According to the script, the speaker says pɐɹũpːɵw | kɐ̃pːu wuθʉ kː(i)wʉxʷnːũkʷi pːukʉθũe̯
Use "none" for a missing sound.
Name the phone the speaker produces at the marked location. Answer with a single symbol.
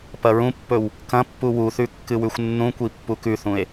ɨ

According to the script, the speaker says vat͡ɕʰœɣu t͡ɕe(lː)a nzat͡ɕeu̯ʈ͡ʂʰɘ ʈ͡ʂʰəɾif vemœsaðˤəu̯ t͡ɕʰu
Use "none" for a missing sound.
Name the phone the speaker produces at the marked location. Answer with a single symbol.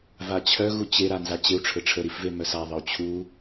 ɾ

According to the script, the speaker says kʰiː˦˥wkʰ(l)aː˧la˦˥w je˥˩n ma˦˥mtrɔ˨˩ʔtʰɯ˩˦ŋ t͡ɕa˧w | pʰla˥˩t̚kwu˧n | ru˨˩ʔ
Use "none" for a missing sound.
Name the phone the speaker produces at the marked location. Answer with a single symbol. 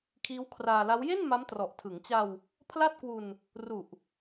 r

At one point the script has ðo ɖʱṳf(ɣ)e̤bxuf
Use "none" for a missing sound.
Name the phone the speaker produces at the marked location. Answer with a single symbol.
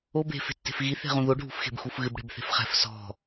x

